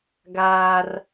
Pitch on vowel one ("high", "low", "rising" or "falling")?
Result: high